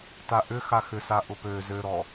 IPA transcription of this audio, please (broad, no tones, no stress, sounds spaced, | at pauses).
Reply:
t a ʔ ʏ x a x ʏ s a ʔ ʊ p ø z ø ɾ ɔ